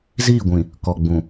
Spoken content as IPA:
ziː˦˨ɡʷĩ˨ | kɔ˨ɡ͡bũ˨

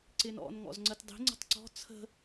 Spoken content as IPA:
ǀɪnɔ̰n ŋɔ̰zŋ͡ǀətdˤi̤ ŋ͡ǀə̤tˤǀɔ̤ t͡sʰə̤

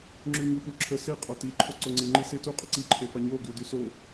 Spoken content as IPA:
ŋ͡ǁʉɲupuǁʰə se qʼɑti ǃʰoǀoŋ͡ǀi ŋ͡ǃise tu qʼəǀi ǃʰefɑɲo ɡʉdyso

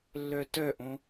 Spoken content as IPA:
lːœtœʔõ

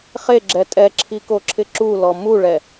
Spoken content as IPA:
χeɡ͡ǁɛ tʼɛǁʰikoǁʰɪ ǁulɔ muɭɛ

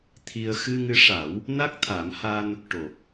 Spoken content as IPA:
t̪ʰi˧ə̯ xɨ˧ŋɨ˧˥ʂa˨˩˦w | na˦˥k̚t̪ʰa˨˩˦mha˧n | ʈo˨˩k̚

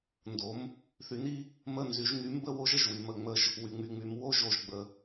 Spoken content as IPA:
ndo˩˥m | θy˩˥ni˦˥ | mə˥˧nzy˩˥ʒ ŋy˩˥mbə˥˧wo˦˥ʒ ə˩ʒwy˩mə˧˩ ŋ͡mə˧˩ʒ | wy˩ŋ͡my˩ŋ͡my˩˧m wo˦˥ʒo˩ʒɡ͡bə˩

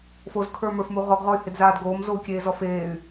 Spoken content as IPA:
fozkʰə˞mə˞fmu ʁɔɡʁɔy̯hɪdzaːd ɡoːmzou̯kʲeːzɔ feːy̯

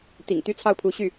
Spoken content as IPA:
t̪ḭ˨˩ŋ t̪y˥t͡sʰɑ˥˩ʊ̯pʰu˧˥ɕy˥˩

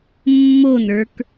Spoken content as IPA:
mːonə˞k

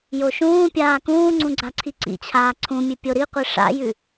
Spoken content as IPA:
joʃũːpʲaː kũːŋ͡ǀũ ɡ͡ǀaǀʰiǀḭt͡ɕʰaː ǀʰũmʲʉ pʲoɾiqʷi ʂa̰jʉ

